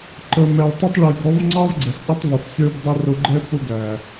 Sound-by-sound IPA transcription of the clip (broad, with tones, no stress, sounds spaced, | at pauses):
ǃ ə˨ m ɛ˨ ɭ tˤ ə˦ tˤ ɭ i˨ ɡ ɔ˨˦ v ŋ͡ǀ ɑ˦ v ɡ͡ǀ ɛ˨ f ʔ i˦ tˤ v u˨ f sʲ ə˞˦ b dˤ ʊ˦ r ʊ˦ ɡ͡ǃ ɛ˦ p ʊ˦ ɡ æ˨